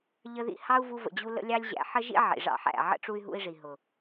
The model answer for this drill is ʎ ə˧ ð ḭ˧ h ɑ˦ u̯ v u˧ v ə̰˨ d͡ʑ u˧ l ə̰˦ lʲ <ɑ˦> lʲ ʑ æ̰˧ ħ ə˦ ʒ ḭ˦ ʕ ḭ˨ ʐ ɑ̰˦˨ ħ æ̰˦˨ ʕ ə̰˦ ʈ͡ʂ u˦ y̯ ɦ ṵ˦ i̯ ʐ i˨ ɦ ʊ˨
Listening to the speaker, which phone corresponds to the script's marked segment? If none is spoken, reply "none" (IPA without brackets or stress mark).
ɑ˦